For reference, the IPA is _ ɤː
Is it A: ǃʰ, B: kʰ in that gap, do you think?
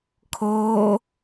B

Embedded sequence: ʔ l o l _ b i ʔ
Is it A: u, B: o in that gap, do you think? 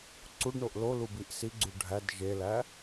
A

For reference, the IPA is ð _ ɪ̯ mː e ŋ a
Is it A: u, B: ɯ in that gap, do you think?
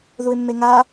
A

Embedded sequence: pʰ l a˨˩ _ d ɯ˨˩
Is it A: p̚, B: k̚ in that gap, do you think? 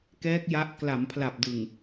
A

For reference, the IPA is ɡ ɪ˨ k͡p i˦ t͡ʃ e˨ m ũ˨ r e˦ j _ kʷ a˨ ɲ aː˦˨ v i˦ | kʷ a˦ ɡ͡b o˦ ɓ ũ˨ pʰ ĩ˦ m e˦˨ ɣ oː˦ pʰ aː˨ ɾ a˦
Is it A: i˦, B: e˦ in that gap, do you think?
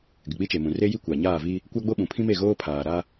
A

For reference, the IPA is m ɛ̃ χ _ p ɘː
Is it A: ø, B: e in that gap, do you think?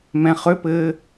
A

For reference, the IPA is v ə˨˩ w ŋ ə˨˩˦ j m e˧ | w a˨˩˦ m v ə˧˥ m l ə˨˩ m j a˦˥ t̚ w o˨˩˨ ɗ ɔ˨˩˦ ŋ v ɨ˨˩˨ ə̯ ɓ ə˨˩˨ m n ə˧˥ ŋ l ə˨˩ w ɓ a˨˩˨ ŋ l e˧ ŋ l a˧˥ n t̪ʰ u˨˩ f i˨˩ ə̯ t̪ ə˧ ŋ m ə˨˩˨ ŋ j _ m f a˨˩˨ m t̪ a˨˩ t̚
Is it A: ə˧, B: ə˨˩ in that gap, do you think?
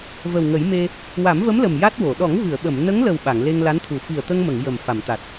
B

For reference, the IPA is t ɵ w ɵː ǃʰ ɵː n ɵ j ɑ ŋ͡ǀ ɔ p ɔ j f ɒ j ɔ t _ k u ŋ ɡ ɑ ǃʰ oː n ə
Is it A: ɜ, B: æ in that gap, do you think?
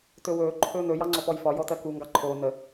A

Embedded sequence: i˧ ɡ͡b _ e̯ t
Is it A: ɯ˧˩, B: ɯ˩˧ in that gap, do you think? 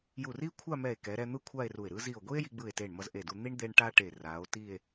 A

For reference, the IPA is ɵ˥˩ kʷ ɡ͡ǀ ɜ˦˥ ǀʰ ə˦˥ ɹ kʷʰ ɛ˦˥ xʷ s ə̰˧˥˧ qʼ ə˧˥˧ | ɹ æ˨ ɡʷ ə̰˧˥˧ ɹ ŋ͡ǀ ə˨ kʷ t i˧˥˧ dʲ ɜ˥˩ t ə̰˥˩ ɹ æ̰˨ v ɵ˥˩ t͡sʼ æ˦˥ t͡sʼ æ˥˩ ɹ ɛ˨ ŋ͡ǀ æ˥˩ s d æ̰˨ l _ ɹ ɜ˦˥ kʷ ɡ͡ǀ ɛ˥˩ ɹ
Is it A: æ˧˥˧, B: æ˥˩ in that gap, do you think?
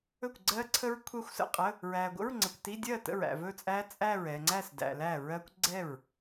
B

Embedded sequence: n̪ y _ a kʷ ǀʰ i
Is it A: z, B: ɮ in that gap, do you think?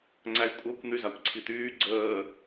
A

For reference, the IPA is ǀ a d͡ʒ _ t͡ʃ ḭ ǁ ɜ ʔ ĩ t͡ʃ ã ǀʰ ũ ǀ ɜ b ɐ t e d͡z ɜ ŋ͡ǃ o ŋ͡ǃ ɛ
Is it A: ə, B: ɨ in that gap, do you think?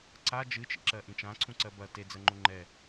B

